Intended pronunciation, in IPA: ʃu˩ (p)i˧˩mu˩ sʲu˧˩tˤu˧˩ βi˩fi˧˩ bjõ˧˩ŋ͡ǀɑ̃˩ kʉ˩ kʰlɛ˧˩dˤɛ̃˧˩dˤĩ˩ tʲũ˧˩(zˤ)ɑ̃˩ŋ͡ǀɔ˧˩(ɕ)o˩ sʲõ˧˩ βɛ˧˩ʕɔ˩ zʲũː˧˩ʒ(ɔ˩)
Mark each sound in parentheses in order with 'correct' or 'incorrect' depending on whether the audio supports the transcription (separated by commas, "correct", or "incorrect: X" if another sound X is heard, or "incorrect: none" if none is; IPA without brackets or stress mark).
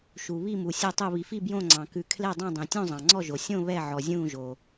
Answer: incorrect: β, correct, incorrect: ʒ, incorrect: o˩